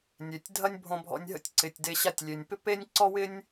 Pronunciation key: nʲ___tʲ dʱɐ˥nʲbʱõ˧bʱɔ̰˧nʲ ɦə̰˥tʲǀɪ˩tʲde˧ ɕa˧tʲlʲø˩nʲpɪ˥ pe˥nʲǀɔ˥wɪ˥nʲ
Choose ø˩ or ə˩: ø˩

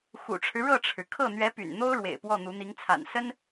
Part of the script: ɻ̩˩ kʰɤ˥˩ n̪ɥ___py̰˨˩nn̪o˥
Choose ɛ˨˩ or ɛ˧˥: ɛ˧˥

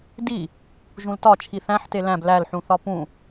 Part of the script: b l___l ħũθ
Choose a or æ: æ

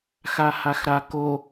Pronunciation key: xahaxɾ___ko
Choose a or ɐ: a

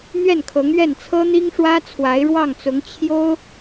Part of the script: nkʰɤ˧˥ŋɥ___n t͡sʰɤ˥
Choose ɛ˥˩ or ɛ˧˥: ɛ˥˩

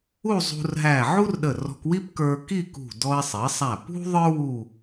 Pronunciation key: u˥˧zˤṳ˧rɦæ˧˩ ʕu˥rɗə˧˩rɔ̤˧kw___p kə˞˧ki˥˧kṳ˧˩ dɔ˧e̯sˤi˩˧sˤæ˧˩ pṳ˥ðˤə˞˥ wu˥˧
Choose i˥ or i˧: i˥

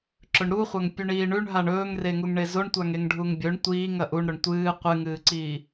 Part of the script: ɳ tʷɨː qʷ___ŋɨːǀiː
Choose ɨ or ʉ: ɨ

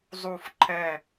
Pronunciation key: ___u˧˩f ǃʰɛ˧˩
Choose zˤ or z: zˤ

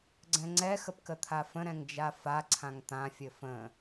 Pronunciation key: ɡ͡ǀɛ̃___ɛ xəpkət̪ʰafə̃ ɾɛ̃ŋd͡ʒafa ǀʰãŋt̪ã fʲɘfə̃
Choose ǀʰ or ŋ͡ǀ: ŋ͡ǀ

